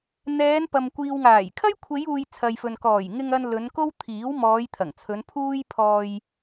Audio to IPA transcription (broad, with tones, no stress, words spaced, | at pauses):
n̪ɛː˨˧npɐ˨m kʷiː˨wŋaː˨˩j kʰɐ˥jkʷʰe˨˧juː˨j t͡sʰɐ˨jfɵ˨n kɔː˨˩jŋɪ˧ŋɐ˧n lɵ˨˧nko˥w t̪ʰiː˨˥w mɔː˨˧j t̪ʰɐ˨˩ŋt͡sʰɵ˨˧npʰuː˥j pʰɔː˧j